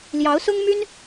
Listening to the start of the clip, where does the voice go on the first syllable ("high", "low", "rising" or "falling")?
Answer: rising